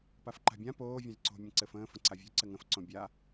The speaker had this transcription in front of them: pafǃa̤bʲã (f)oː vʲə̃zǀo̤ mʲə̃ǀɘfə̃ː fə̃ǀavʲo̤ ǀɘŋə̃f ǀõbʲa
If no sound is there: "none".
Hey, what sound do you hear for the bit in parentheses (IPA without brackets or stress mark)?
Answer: p